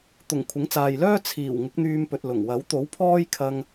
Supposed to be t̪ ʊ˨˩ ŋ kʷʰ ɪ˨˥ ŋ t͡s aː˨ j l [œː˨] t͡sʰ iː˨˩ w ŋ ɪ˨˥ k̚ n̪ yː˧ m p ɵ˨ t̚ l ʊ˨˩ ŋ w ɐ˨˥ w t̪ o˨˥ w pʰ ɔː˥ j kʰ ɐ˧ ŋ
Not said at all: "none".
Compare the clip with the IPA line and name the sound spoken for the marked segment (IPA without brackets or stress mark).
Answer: œː˥